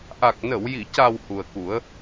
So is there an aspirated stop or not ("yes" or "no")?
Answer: no